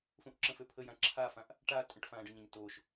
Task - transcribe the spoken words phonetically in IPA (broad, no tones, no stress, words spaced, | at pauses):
fũʔǁə̃føpʰə jãǁʰafãʔ | ʈa tʼə̃ʈ fãːɖəɲãɲ toʃ